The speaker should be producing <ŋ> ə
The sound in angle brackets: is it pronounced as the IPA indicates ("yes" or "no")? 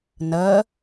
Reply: no